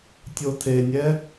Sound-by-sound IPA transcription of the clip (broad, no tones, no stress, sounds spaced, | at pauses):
tʲ o tʰ e nʲ ɛ